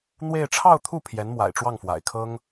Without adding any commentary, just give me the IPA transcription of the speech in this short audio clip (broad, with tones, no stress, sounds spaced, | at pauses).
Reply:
n̪ w e˥˧ ɪ̯ ʈ͡ʂʰ ɑ˥˧ ʊ̯ t̪ʰ u˥˩ pʰ j ɛ˧˥ n m w a̰˨˩ ɪ̯ ʈ͡ʂ w ɑ˥˩ ŋ f w a̰˨˩ ɪ̯ kʰ ɤ˥ ŋ